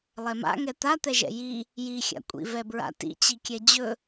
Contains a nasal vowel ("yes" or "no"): no